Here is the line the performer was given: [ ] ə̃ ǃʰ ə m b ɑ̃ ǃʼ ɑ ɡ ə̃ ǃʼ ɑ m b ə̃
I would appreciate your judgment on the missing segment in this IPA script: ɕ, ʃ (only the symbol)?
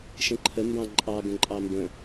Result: ʃ